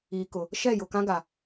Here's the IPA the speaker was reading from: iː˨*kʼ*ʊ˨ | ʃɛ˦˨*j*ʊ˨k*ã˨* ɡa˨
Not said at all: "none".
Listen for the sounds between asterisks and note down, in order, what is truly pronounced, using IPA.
k, j, ã˦

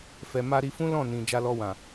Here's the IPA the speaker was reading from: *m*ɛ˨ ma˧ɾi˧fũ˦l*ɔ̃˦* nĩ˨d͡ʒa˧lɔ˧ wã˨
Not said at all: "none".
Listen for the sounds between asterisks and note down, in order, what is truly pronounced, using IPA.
f, ɔ̃˦˨

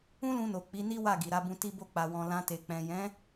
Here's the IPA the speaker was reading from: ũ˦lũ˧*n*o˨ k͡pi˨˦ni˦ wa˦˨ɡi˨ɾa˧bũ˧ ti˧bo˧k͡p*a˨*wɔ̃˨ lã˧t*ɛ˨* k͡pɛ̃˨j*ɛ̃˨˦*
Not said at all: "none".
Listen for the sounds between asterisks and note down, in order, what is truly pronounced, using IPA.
n, a˨, e˨, ɛ̃˨˦

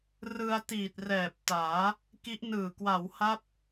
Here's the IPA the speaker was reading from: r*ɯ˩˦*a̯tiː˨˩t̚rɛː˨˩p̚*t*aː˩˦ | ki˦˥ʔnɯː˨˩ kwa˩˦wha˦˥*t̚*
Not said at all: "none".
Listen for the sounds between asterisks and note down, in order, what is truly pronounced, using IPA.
ɯ˧, t, p̚

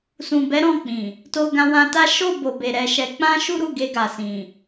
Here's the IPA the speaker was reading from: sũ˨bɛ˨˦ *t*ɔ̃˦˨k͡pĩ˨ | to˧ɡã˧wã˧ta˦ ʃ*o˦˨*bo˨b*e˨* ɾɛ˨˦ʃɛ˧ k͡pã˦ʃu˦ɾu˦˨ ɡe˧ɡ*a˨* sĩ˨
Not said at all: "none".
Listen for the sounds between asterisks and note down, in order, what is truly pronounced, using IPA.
ɾ, o˦˨, e˨, a˨

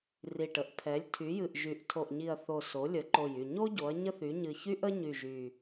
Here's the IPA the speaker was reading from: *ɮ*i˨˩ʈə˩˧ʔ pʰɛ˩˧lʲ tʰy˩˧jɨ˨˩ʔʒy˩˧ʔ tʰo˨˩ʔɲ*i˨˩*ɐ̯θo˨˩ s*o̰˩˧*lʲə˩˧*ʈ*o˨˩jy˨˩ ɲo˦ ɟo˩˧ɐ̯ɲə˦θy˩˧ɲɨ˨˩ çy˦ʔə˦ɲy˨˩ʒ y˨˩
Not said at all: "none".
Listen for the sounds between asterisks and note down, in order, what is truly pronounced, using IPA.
r, i˨˩, o˩˧, ǃ

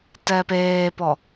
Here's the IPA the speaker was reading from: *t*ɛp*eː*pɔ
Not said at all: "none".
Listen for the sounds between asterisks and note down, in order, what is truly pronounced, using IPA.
t, eː

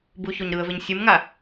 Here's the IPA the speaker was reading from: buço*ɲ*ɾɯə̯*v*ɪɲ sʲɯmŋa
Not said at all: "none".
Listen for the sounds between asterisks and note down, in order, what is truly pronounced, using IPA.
ɲ, v

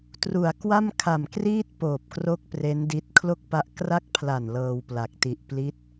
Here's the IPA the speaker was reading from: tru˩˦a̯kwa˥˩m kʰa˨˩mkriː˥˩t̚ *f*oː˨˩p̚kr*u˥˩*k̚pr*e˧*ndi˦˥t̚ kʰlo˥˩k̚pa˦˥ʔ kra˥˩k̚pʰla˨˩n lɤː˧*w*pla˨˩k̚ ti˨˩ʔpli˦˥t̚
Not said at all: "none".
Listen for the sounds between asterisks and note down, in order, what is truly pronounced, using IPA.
p, o˥˩, e˦˥, w

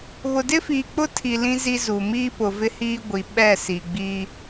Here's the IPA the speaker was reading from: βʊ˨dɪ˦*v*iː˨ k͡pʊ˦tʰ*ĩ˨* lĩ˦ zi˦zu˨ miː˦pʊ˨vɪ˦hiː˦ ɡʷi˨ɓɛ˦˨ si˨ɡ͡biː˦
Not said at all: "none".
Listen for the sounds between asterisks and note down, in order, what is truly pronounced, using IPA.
f, i˨

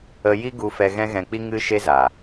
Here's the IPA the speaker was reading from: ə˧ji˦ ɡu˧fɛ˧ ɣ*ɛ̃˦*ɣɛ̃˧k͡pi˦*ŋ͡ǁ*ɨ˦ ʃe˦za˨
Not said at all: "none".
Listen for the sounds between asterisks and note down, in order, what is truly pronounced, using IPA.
ɛ̃˦, ŋ

